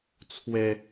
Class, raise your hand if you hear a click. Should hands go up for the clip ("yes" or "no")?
no